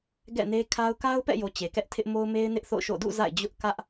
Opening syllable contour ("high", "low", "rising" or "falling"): falling